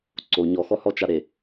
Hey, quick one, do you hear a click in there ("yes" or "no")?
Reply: yes